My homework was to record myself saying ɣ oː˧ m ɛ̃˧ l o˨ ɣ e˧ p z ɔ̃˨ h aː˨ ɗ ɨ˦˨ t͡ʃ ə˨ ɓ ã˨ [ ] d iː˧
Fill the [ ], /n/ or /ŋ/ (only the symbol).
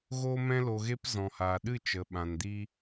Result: n